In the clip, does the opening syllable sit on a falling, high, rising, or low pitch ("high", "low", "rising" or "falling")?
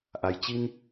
low